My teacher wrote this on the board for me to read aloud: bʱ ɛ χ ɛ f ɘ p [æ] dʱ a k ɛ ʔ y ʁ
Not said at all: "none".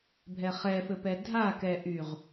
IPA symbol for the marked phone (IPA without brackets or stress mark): ɛ